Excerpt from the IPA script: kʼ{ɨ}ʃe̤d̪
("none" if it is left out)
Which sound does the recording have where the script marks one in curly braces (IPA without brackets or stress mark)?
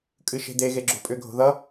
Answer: ɨ